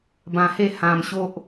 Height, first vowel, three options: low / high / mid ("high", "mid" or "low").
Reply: low